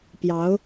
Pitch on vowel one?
rising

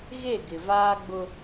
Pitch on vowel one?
falling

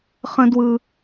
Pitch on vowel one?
high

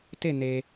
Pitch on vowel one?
falling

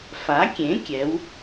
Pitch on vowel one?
rising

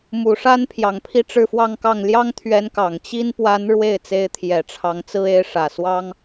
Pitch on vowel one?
low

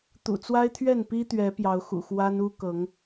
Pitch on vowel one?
low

